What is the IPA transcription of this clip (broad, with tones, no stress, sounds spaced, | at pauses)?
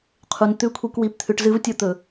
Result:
qʰ u˨ n t̪ ʉ˦˨ kʷʰ i˧ k w i˨ p t̪ʰ ʉ˨ ʈ z ɨ˧ v tʲ o˧ t̪ ɵ˨